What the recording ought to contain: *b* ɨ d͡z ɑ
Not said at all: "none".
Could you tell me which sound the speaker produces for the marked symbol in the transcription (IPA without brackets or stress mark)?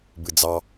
b